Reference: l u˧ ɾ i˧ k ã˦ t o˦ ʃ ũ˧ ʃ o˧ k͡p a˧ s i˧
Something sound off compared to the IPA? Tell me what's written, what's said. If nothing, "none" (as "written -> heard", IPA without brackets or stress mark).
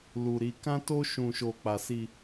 none